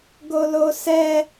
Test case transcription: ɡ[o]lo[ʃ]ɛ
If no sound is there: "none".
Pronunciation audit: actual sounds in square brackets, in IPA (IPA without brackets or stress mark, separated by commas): o, s